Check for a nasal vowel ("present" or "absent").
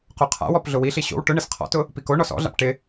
absent